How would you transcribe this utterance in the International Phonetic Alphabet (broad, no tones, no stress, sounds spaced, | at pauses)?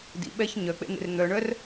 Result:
d ḭ ɓ ɛ ç ɲ œ k͡p ḛ n̪ ḛ r n̪ œ ɳ œ r